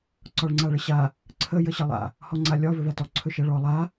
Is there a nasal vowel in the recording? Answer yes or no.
no